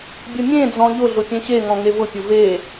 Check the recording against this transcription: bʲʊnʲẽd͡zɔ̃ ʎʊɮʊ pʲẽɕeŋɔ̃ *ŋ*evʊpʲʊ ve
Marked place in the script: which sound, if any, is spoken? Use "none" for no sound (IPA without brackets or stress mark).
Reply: ŋ